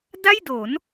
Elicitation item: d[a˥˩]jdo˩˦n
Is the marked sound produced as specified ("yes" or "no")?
yes